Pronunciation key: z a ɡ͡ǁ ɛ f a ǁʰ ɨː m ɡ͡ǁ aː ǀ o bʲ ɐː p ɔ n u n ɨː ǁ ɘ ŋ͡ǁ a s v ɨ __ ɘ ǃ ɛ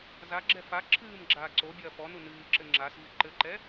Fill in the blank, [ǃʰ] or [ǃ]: ǃ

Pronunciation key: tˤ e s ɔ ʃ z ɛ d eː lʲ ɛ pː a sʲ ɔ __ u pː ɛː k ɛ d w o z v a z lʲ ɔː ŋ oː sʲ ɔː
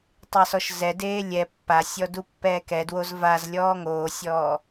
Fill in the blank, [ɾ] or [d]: d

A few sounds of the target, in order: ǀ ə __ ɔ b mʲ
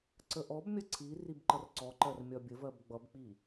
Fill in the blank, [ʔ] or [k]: ʔ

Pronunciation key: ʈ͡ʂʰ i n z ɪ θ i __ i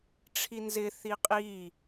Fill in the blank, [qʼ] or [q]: qʼ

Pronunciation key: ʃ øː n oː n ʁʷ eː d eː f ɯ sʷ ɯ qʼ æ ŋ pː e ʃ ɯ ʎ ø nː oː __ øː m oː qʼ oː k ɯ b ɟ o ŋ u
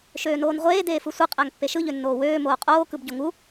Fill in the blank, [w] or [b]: w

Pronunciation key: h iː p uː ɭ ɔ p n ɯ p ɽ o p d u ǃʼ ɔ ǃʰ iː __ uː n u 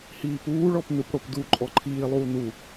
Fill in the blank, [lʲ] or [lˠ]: lˠ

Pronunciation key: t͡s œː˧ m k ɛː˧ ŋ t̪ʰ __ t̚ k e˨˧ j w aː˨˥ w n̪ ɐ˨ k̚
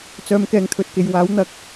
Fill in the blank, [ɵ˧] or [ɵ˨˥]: ɵ˧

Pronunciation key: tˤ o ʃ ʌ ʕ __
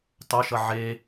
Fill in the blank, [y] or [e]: e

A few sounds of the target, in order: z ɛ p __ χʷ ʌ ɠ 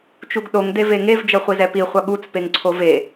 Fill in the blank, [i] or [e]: i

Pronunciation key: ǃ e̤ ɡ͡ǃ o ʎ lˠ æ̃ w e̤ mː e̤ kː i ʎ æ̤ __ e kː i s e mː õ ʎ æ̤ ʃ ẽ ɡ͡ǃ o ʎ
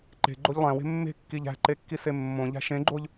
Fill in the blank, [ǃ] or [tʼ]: ǃ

